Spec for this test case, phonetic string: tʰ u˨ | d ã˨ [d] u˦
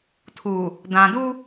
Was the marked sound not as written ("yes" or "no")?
no